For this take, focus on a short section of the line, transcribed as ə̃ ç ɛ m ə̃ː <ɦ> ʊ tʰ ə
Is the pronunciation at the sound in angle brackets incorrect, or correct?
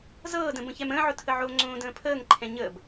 incorrect